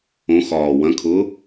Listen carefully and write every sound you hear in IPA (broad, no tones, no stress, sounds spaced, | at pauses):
õ x ɒː w ɐ̃ kʰ ʊː